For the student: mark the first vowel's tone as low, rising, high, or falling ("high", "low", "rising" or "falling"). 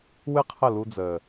high